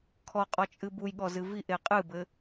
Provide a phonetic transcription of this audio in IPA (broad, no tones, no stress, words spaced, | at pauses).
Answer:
kʰɔqʼɔt͡ʃʼɨ bujɠɔzɨ viʔe qʼɨbɘ